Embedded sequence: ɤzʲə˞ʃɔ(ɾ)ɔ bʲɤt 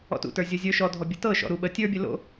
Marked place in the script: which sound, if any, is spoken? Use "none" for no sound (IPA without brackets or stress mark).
dʱ